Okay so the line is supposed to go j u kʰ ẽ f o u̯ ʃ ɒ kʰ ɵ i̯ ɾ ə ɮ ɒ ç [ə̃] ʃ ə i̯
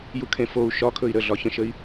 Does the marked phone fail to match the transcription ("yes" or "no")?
no